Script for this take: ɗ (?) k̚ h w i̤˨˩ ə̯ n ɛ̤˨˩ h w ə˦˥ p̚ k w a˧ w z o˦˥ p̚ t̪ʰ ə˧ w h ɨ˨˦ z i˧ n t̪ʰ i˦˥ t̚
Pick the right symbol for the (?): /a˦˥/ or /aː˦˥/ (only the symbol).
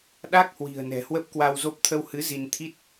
a˦˥